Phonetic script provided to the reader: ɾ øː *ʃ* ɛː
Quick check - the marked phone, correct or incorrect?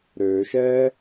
correct